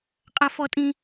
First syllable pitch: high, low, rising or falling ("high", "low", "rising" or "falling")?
high